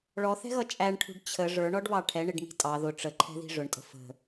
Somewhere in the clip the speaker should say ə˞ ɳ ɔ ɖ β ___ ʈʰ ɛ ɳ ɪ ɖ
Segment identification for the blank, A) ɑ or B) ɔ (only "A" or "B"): A